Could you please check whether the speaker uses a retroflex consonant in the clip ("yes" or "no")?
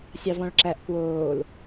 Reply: yes